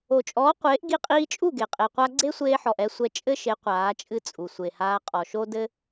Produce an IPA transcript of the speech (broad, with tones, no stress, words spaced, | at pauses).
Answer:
o˨t͡ʃʼɔː˨˦qʷeː˨˦ʔ ɡi˧qʼiː˧t͡ʃʼu˦˨ ɡe˨qʼe˨qʷa˦ ɡ͡ǀe˦sʷeː˧ħɔ˨ʔ ɛ˧ sʷɛ˧ t͡ʃʼɘ˦ʃe˨˦ qʷaː˨˦t͡ʃʼɨ˦t͡sʼu˨ sʷe˨haː˧qʼɔ˨ʃo˦ dɘ˦